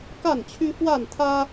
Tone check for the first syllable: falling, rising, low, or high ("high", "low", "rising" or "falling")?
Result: falling